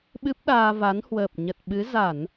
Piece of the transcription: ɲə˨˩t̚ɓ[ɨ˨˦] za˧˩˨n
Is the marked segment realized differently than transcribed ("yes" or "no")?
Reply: no